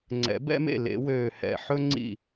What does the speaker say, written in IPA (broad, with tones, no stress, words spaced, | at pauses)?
ŋ͡ǀɛ̰˨˩˦bɛ̰˥mḛ˥˨ lḛ˨˩˦wøː˧˩hɛ̰˧˩ ħɵ˥ ŋ͡ǀḭ˥˨